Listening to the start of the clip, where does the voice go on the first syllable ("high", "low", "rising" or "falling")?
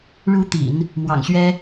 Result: rising